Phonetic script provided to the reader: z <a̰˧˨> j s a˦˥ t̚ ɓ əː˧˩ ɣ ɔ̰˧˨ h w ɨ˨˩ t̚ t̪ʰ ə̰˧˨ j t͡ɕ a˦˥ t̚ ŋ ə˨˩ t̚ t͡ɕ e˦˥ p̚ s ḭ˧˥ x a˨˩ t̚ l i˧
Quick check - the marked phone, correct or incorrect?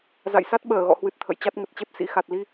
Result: correct